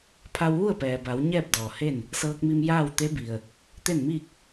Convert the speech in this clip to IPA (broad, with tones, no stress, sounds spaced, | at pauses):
pʰ a˧ w ʋ u˥˨ ə̯ p ɛː˩ b a˩˧ w ɲ ɛː˥˨ p̚ d ɔː˩ h e˥˨ n | s ɤː˧ k̚ m i˧ m j aː˥˨ w t̪ e˧˥ b i˩ ə̯ | t̪ e˥˨ n m iː˥˨ k̚